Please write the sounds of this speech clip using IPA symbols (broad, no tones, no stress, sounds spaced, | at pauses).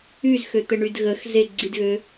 y z x ø t̪ ɘ ɳ y d ɣ ə x z e ɡ͡ǀ i d ɣ ø